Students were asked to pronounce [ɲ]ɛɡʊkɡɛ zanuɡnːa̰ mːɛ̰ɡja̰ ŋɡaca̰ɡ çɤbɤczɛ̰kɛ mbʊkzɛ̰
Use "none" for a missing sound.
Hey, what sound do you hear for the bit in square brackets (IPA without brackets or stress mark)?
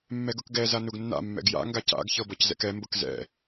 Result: mː